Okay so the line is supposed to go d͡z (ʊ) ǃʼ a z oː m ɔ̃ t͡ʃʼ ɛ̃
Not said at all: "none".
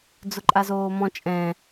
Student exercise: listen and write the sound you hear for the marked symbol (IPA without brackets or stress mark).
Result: ʊ